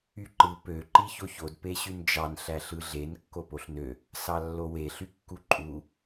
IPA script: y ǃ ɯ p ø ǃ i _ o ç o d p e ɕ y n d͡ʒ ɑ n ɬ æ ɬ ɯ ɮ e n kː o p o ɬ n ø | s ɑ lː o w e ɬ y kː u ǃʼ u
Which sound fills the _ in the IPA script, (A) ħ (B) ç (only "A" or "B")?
B